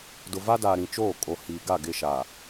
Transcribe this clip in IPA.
dʊ˨va˦daː˨ ɾĩ˨t͡ʃoː˦˨kʼo˨ hiː˨ɡa˦˨ ɡɪ˦˨ʃa˨

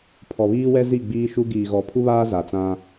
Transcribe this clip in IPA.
pʰɔ˨βiː˦wɛ˦zi˦˨ ɡ͡biː˦ʃu˦ ɡiː˨ɣɔ˨pʰu˦βaː˦ za˨t͡sã˦

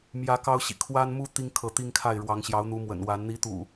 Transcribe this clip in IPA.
mjä˨˦ kɑ˦ʊ̯ɕḭ˨˩ kʰwa˦nmu˦ t̪i˦ŋkʰɤ˨˦t̪i˦ŋ kʰa˥˨ɪ̯ɻwɑ˨˦ŋ ɕjɑ˨˦ʊ̯n̪u˨˦mwə̰˨˩nwa˨˦n n̪i˨˦t̪ṵ˨˩

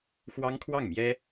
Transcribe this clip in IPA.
xwɑ˥ŋkʰwɑ˥˩ŋmjɛ˥

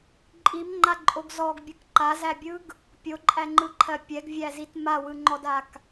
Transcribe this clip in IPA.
ǃʼimŋ͡ǃaǃʼoɡ zɔɡbʲɯk ǃazæbʲɯɡ | pʲoǃʼæŋ͡ǃɯǃʰɜ pʲɛɡvʲæzit mawɯŋ͡ǃɔdak

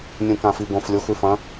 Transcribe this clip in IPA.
nʲũkãfiɡõf lʲoxʉfɐ̃

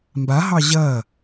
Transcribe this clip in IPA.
mbaɦɑ ʑɐ

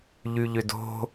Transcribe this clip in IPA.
ʎyʎʏdo̤

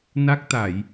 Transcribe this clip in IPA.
na˦˥k̚t̪a˧˩˨j

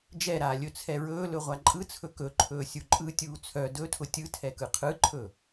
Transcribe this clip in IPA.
d͡ʒɛɾaː lʲɵt͡sʰɛɹɵːlɵ ʁʷaǃʼɯt͡sʰɵ kɵǃʰɵː sʲuǃʼɯtʲuː t͡sʰœ dɵtʰʊ tʲɯ tʰɛkɯqʰɯǃʰɵ

